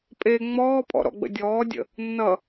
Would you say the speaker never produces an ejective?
no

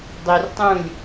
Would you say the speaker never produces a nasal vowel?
no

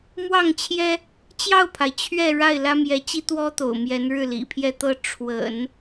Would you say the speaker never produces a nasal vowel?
yes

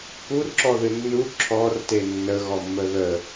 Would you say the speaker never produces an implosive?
yes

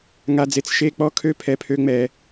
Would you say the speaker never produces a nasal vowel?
yes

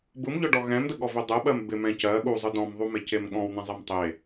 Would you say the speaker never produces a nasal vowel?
no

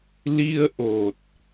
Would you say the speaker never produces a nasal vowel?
yes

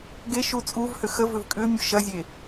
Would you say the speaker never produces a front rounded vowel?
no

